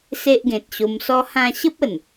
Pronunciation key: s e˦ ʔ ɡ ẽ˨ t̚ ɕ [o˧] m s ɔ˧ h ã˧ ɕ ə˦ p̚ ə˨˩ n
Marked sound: correct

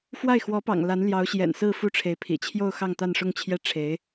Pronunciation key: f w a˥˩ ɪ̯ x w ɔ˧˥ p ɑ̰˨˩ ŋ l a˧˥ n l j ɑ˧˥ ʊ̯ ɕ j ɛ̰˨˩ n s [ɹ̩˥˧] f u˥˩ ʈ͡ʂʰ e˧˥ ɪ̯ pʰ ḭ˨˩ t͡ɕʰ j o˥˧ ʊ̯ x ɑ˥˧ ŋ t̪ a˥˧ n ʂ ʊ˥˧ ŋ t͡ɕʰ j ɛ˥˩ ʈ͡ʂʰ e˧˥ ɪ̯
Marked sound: correct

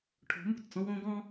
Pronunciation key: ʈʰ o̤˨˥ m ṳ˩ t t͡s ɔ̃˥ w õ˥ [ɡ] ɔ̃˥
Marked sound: correct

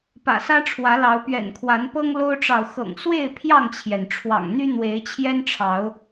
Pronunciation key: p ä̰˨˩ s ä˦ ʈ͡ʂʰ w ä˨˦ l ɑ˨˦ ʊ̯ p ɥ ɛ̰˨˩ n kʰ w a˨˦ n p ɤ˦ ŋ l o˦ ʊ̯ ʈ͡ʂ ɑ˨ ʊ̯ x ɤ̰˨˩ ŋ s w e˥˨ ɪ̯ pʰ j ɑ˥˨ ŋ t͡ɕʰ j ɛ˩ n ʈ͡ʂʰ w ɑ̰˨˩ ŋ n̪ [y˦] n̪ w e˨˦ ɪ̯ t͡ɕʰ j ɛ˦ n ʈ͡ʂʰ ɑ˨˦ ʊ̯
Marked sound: correct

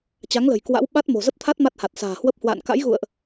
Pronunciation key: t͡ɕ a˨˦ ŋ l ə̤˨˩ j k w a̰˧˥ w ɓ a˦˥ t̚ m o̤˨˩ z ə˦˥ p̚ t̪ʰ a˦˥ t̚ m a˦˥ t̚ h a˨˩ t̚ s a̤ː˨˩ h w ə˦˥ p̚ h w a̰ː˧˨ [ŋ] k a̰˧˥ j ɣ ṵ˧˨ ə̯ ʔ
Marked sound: incorrect: n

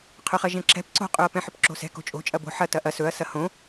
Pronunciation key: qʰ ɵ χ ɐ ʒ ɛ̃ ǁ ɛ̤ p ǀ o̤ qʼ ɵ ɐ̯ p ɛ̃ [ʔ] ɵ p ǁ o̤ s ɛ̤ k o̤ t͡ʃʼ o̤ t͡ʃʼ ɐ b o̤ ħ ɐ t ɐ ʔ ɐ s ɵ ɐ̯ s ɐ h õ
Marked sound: incorrect: ħ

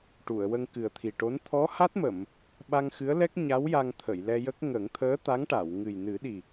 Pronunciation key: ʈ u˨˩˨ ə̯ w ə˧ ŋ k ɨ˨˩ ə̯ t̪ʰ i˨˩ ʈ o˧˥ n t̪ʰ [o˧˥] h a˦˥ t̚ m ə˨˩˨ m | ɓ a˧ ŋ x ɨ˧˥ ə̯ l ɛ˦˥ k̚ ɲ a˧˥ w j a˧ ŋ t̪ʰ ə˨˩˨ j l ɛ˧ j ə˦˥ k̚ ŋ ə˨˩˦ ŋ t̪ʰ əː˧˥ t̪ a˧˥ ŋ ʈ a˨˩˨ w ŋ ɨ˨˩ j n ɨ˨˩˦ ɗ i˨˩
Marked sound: incorrect: ɔ˧˥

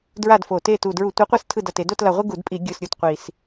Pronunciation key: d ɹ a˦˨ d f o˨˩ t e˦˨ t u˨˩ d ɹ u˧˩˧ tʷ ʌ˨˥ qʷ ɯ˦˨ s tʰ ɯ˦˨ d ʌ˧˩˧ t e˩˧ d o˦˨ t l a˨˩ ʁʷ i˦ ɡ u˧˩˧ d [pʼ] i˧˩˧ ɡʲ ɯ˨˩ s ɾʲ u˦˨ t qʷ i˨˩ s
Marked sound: correct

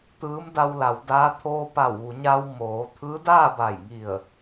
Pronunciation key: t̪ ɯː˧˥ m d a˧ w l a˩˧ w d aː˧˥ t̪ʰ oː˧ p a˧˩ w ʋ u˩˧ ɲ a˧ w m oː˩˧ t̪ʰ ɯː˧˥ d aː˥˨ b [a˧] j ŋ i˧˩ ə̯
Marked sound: incorrect: a˧˩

